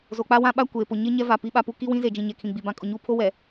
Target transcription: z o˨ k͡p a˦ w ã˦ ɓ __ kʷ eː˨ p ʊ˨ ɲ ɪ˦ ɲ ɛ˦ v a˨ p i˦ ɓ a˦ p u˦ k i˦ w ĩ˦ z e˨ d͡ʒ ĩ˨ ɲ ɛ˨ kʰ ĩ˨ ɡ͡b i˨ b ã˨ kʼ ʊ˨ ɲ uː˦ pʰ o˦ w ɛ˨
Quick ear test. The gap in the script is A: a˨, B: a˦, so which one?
B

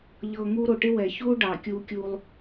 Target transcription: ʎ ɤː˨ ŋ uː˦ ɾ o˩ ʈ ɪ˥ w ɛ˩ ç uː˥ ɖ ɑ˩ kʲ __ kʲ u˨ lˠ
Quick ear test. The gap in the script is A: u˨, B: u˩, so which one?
A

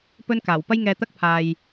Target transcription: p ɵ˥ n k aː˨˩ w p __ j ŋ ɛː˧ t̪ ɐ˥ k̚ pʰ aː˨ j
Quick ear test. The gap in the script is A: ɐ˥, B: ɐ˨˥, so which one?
A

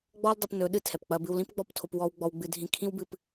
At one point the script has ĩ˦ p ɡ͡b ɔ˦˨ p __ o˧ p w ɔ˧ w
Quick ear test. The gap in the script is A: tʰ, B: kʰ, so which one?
A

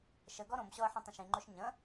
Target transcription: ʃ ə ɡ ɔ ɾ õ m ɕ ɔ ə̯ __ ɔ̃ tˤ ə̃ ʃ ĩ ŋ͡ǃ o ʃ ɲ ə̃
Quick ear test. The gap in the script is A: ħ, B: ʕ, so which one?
A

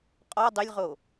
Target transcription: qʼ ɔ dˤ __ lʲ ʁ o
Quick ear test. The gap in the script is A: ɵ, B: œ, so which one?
A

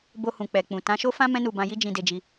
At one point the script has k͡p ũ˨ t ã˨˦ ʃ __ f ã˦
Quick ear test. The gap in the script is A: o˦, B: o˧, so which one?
A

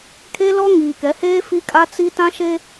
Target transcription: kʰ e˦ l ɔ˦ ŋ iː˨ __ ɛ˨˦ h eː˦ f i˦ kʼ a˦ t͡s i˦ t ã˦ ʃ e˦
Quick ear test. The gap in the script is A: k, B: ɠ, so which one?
A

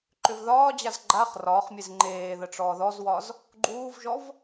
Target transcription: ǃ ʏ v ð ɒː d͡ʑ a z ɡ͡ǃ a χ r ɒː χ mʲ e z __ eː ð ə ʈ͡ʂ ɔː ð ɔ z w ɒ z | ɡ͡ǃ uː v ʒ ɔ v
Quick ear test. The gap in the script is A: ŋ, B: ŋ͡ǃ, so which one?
B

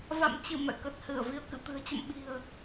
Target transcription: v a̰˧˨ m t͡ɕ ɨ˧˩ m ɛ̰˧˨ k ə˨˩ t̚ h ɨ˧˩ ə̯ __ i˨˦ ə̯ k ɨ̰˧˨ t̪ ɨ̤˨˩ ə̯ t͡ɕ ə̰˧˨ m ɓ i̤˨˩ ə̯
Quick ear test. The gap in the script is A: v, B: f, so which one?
A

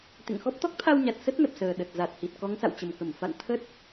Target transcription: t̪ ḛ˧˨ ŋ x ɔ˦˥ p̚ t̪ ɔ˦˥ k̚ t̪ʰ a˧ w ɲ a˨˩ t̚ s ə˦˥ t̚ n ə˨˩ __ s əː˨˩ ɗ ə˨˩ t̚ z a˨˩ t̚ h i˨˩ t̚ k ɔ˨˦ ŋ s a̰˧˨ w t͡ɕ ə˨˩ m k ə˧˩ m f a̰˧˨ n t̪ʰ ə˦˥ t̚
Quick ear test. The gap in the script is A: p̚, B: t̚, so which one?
A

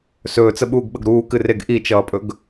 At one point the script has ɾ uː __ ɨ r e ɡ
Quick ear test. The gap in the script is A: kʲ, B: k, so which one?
B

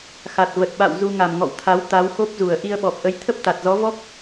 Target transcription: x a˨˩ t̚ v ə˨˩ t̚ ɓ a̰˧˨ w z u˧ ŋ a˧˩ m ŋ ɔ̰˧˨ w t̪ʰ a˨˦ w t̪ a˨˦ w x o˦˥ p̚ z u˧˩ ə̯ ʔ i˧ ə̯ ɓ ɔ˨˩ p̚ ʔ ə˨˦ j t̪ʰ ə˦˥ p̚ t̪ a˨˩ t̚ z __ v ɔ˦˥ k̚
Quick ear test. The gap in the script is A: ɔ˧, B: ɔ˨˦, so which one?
B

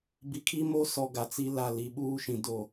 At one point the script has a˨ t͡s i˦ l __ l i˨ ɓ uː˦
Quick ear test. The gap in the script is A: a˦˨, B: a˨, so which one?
A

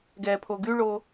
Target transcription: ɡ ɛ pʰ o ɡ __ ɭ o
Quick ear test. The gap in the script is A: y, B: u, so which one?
A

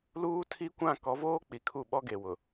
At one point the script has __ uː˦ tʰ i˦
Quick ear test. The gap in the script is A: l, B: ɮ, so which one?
A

